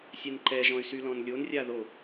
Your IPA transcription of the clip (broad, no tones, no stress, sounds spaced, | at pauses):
sʲ ɛ n ǃ ɛ ʒ ɔ̃ y̯ s y l ɔ̃ n lʲ o n rʲ a ð o